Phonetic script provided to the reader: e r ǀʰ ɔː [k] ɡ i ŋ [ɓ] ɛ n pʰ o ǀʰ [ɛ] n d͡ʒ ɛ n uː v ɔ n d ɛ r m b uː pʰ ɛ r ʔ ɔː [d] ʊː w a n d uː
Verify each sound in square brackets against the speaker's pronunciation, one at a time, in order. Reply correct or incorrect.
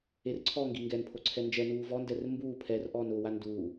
incorrect, incorrect, correct, incorrect

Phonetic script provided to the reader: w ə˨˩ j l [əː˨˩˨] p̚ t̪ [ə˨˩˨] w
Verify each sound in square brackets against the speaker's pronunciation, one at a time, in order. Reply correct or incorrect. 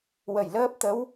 incorrect, incorrect

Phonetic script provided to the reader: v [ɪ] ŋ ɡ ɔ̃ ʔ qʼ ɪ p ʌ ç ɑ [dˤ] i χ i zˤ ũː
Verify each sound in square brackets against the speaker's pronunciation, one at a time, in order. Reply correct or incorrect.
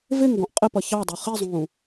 correct, correct

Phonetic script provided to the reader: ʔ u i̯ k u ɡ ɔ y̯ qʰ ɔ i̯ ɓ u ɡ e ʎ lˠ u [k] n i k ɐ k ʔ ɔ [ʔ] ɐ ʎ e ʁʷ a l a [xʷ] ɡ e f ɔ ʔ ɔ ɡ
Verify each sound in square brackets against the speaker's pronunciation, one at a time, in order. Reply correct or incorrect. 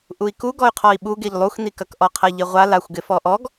incorrect, incorrect, correct

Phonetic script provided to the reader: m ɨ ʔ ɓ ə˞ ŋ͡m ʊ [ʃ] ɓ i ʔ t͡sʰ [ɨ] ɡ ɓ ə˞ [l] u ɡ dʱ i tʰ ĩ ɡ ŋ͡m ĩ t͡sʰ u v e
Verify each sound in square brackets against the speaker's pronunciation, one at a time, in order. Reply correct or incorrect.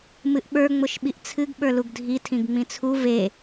correct, correct, correct

